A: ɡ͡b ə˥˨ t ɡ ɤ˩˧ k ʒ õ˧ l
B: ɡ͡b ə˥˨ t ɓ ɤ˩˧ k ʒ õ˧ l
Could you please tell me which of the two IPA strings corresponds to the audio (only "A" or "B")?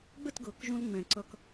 A